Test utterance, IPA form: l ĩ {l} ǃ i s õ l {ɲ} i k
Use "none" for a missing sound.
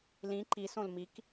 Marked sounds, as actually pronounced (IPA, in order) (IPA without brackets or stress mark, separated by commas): none, m